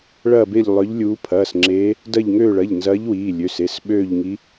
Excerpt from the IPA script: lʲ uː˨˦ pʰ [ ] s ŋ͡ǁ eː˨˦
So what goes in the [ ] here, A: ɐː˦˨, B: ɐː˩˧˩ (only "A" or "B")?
B